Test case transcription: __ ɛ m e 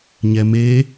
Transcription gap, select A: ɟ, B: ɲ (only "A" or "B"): B